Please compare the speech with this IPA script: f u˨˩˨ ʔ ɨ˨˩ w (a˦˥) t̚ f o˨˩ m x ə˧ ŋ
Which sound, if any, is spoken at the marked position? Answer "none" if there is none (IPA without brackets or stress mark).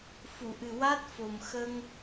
a˦˥